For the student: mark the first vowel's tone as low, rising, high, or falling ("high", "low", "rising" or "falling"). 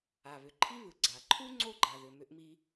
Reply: low